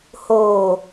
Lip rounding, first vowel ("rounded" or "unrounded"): rounded